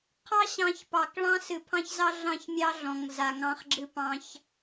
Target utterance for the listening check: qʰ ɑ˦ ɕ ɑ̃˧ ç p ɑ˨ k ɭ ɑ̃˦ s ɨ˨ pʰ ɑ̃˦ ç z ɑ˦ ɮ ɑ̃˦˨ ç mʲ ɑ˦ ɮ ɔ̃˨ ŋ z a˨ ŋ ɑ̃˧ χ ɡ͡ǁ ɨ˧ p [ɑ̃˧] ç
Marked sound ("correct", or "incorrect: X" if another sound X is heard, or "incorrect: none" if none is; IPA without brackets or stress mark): correct